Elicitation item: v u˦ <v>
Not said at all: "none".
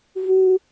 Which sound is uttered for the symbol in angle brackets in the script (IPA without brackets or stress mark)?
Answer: none